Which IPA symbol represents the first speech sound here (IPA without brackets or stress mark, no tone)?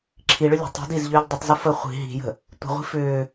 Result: ǁʰ